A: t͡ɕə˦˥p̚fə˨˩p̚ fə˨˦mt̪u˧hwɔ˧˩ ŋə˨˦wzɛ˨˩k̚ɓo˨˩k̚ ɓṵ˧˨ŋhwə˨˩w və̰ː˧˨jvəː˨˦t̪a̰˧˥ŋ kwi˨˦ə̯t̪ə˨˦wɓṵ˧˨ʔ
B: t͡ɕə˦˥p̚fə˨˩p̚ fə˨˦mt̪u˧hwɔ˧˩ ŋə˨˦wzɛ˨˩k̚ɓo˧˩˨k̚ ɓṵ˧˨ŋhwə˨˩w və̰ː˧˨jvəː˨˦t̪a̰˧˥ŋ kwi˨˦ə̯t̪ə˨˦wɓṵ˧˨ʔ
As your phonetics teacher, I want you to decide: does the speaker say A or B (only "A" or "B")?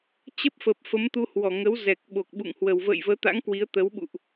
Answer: A